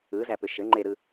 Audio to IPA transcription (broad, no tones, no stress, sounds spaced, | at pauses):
ɯ z æ p ʏ ʃ ɘ ŋ͡ǃ e ɾ ɯ